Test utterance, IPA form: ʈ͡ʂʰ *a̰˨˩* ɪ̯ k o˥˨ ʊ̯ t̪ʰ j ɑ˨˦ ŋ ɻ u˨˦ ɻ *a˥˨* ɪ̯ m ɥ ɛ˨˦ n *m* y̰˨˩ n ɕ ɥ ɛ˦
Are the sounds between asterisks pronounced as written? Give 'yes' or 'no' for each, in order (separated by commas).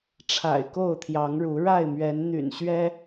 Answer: yes, yes, no